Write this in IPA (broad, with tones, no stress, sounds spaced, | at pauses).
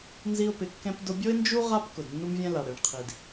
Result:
n z i˧ ʊ̯ p ɪ˩ kː ɛ̃˧ p d ʊ˧ bʲ o˥ ɪ̯ n d͡ʒ u˥ ʁ a˧ p k ʊ˩ d nː u˧ m vʲ ɛ̃˧ l a˩ ɽ e˩ ɳ qʰ i˩ d